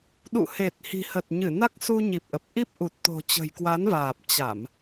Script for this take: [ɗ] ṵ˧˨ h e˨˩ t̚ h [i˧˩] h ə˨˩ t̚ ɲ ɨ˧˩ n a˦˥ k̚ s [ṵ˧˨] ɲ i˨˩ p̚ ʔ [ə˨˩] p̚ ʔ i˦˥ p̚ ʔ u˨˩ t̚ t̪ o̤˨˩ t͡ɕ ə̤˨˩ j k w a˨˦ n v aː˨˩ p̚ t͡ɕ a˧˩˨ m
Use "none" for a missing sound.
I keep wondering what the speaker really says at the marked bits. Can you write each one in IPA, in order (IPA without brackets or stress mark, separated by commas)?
ɗ, i̤˨˩, u˧, ə˨˩